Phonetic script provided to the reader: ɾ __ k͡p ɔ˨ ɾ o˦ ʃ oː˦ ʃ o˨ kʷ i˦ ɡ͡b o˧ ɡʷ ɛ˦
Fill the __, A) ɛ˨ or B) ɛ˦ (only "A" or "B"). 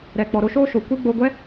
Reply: A